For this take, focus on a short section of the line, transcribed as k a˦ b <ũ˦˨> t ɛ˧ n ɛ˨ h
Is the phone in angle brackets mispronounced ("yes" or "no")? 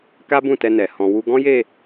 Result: no